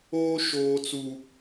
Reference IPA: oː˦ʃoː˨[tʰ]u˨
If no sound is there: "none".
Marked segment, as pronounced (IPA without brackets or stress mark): t͡s